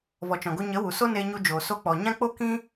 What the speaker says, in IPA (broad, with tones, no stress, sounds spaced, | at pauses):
v ɔ˨ t͡ʃ ɔ̃˨ ɡ o˧ ɲ ə˨˦ w u˨ s o˦ n eː˧ ɲ u˧ d͡ʒ oː˨ s o˧ k͡p ɔ˨ ɲ ã˦ k͡p o˦ k ĩ˦